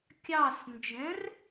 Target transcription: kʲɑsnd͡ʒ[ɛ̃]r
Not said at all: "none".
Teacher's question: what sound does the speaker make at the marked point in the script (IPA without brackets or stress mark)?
ɛ̃